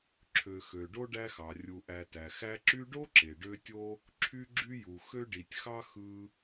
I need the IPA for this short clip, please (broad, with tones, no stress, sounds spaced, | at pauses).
ǁʰ ø˨ x ø˩ ɖ o˥ ɖ æ˦ x ɑ˩ rʲ u˨ ʔ æ˨ t æ˩ x æ˥ ǁ y˦ ɖ o˥ ǁ e˩ ɖ ø˦ tʲ o˥ | ǁʰ y˥ ɡ͡ǁ y˥ j u˨ x ø˥ ɖ i˨ tʲ x ɑ˥ x ɯ˦